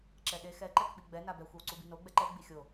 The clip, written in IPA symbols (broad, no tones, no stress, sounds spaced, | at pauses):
ǁ ɛ ɗ e x ɛ ǃ ɛ k ɓ i ɡ͡b ɛ n a b ɛ xʷ e w ǀ u b i n o ɡ͡b ɛ ǃ ɛ ɡ͡b i xʲ o